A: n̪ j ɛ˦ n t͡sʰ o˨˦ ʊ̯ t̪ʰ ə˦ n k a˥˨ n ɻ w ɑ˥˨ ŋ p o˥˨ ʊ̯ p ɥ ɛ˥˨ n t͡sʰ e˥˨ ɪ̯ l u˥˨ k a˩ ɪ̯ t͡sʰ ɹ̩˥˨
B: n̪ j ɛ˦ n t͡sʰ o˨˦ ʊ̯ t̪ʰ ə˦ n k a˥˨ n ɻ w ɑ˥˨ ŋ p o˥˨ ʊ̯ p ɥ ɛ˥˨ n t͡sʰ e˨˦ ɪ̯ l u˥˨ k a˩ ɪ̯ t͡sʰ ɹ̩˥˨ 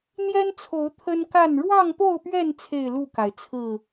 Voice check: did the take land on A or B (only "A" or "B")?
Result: A